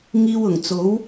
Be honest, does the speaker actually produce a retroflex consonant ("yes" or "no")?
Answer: no